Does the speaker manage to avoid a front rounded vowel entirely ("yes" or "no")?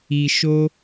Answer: yes